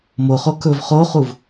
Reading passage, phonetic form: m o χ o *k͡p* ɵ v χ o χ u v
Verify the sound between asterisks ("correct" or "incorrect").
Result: incorrect